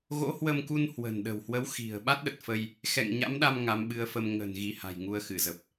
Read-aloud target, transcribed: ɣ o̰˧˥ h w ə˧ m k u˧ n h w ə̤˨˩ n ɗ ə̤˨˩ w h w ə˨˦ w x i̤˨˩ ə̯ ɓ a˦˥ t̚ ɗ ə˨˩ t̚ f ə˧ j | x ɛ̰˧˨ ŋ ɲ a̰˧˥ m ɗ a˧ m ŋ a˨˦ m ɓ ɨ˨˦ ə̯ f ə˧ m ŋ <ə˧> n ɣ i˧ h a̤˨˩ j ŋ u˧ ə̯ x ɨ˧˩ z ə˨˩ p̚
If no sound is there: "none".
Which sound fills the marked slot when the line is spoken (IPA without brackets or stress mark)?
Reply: ə̤˨˩